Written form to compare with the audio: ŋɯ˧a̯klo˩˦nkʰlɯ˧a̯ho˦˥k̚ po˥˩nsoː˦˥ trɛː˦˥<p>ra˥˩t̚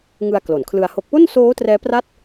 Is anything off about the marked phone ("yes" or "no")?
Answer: no